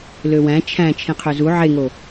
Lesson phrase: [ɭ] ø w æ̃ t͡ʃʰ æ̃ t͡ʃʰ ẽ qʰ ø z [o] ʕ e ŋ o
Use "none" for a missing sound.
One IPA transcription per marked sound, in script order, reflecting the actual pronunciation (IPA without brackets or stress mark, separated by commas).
l, u